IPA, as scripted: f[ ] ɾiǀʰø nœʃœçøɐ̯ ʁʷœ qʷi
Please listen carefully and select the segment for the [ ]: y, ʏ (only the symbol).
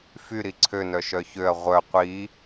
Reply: y